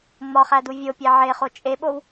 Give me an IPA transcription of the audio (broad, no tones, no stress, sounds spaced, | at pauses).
ŋ͡m ɒ χ æ d u vʲ o pʲ æ ʕ e χ o t͡ʃʼ e ɓ o w